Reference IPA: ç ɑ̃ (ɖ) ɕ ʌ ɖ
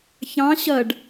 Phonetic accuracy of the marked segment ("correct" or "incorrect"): incorrect